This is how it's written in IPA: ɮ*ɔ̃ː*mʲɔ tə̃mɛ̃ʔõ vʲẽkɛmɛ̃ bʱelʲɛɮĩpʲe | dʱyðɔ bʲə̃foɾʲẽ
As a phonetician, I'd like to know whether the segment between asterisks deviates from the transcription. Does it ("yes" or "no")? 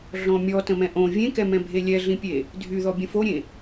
yes